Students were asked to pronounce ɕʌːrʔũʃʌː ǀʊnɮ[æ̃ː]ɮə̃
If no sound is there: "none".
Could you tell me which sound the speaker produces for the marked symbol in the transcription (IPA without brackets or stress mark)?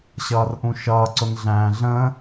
æ̃ː